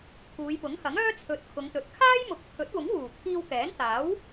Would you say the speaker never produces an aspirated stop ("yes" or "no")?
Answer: no